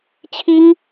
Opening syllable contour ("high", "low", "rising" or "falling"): high